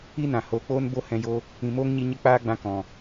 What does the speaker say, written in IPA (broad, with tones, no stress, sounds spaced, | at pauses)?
i˦ n ã˨ h oː˨ k͡p oː˦ n b o˦ h ɛ̃˧ j o˦ | ĩ˨ m oː˦ ŋ ɲ i˧ ɲ ə˦ k͡p aː˦ ɡ͡b ã˧ k ɔ̃˨